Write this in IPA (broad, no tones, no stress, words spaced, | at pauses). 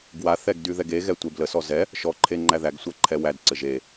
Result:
ɡwaθɛɡ dyðɛɡeɣɛ tʷebləsɔ zɛ | ʃɔǃʰe ŋ͡ǃæðæɡsʷæ ǃʰɛwædǀɘʒ e